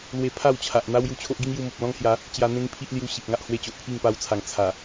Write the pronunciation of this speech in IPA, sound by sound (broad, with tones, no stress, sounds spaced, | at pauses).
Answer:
l w e˧ pʰ a˥˧ w t͡ɕʰ a˨ ʔ n̪ a˦ w j u˧ t͡ɕʰ o˦ ʔ ɡ i˦ ŋ j u˧ m o˨ p̚ l ɔ̃˦ ŋ h j a˨˦ | t͡ɕ j a˧ n̪ ẽ˦ ŋ pʰ i˦ ʔ l j u˦ ɕ i˨ p̚ ŋ a˦ ʔ h w e˥˧ t͡ɕ o˨ ʔ pʰ i˥˧ ŋ p a˧ w t͡sʰ a˨˩ ŋ t͡sʰ a˨˩